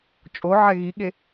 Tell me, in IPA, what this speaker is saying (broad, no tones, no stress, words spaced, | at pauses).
t͡ʃʼoʕɛ ɣiɠe